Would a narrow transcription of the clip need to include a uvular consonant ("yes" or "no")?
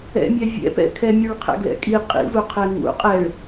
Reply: yes